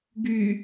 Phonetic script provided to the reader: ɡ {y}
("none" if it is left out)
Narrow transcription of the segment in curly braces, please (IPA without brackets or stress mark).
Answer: y